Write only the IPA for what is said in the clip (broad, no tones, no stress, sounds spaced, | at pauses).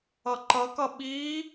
ʌ ǃ ʌ k ʌ ɓ i